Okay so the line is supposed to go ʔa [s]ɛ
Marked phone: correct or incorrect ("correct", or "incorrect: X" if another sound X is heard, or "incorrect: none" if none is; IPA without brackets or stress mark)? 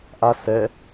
correct